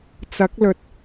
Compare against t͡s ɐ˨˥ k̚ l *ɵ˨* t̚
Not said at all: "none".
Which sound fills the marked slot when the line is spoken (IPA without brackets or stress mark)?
ɵ˨